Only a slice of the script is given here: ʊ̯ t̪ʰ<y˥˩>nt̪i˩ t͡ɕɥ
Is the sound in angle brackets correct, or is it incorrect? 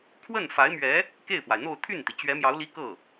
correct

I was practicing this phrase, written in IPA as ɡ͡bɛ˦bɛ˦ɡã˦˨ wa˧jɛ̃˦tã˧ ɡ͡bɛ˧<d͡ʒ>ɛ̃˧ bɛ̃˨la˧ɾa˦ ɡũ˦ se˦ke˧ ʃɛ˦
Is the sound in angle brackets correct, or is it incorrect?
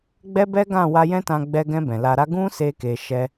incorrect: ɡ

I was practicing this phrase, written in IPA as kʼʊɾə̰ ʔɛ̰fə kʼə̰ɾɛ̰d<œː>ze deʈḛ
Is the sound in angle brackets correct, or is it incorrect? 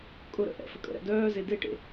correct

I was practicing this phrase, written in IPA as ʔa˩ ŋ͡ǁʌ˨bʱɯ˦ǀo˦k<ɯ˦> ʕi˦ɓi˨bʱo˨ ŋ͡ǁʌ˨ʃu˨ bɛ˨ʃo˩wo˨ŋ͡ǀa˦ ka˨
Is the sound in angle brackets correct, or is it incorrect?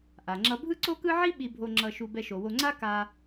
correct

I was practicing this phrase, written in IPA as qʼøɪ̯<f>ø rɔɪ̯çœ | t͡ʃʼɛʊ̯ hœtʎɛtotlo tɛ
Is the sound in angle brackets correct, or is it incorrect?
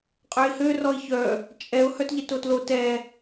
incorrect: h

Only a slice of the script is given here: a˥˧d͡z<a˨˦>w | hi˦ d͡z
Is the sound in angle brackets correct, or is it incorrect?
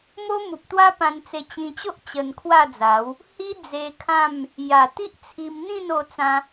correct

